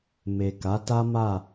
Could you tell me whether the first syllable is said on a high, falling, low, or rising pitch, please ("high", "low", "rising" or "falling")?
low